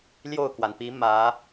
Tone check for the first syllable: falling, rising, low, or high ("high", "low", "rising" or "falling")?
falling